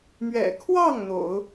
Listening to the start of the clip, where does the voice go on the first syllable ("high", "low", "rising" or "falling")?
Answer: low